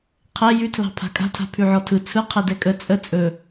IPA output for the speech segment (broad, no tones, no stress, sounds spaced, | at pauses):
qʰ ɛ j ʉ tʰ l ɑ̤ pʰ a̤ kʼ a̤ tʰ a̤ pʰ ʉ ʕ ɔ tʰ ɯ t͡sʰ ɯ qʰ ɛ d ɛ kʼ ə t͡sʼ ə t͡sʼ ɵ